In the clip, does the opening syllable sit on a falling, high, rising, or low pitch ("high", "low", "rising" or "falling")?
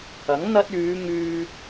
rising